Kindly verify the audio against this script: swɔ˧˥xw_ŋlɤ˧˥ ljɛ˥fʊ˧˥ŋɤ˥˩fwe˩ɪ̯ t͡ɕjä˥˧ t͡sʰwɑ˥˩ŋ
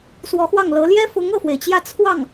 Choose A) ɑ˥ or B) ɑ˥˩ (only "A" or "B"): B